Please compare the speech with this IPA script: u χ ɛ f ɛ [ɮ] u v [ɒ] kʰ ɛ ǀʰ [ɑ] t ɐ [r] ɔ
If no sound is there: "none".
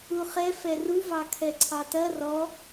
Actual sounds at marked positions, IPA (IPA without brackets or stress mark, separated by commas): r, ɑ, ɑ, r